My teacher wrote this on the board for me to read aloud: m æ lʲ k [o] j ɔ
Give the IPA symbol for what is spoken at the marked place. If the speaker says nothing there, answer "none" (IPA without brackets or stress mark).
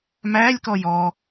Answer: ɔ